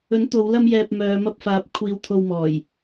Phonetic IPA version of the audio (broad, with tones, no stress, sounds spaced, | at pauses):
ɵ˨˥ n t̪ o˨˧ w l ɐ˧ m j ɛː˨ p̚ m œː˨˧ m ɐ˧ p̚ f aː˨˥ p̚ kʷʰ iː˨˧ w t̪ʰ o˨ w m ɔː˨˩ j